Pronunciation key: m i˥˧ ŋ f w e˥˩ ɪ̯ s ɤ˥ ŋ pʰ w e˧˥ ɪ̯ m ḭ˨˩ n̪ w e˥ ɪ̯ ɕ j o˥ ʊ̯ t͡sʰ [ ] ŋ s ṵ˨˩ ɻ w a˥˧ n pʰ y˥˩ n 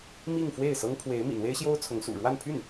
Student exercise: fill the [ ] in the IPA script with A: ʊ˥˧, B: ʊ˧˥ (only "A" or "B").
B